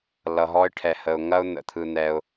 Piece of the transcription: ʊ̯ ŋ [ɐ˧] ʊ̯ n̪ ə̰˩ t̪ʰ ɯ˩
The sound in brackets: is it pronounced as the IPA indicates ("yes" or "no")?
yes